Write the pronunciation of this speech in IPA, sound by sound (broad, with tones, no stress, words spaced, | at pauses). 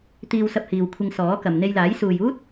t̪iː˧wsɐ˧p̚hiː˨w kʷʰɪ˧ŋsɔː˨˥kɐ˨m n̪e˧jlaː˨˥j suː˨juː˥t̚